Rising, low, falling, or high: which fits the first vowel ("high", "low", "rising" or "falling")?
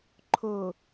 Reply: low